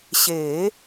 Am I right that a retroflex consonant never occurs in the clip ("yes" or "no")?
yes